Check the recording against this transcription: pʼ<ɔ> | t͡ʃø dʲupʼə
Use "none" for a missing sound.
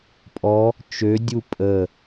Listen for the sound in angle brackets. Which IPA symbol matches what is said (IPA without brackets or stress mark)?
ɔ